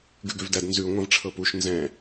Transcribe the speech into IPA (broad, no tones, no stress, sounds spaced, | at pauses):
ɡ ʉ ɡ ø v d æ d n z ʉ ŋʷ ã v ʈ͡ʂʰ ɤ p u ʃ n z ɛ̃